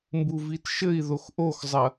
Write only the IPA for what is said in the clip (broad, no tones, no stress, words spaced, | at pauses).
mbuvitʃɘi̯ðox ʔoxzˤɐ